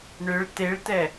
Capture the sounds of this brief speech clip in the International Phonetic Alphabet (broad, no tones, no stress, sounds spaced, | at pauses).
ɳ ʏ ɭ t e ɭ t ɛ